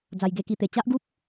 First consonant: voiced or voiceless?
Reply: voiced